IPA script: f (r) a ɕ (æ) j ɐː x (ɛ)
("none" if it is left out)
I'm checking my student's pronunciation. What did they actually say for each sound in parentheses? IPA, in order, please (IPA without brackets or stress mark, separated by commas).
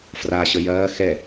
r, ə, ɛ